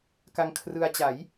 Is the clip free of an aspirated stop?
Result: no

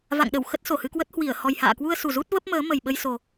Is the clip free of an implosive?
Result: no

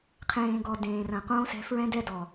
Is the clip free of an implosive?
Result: yes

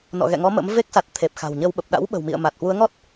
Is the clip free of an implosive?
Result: no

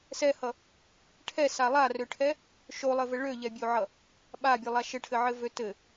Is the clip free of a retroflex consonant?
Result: no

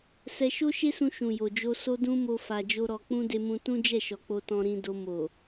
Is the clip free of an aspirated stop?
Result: yes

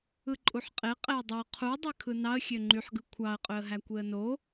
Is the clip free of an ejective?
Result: no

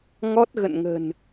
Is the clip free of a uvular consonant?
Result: yes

